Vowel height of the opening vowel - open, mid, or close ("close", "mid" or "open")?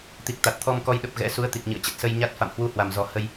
close